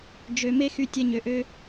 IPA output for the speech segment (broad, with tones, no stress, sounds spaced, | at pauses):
d͡ʒ ø˨ m e˦ x y˧ tʲ ɛ˧ ɲ ø˨ ʔ ø˧